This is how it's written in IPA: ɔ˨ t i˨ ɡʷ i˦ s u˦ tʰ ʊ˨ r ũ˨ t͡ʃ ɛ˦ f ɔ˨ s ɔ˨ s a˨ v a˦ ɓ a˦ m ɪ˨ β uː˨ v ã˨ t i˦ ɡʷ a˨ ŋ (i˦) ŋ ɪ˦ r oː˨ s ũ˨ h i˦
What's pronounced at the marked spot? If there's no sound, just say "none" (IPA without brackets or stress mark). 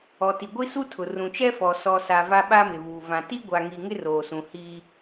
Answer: i˨